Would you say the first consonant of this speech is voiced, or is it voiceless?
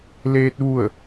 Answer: voiced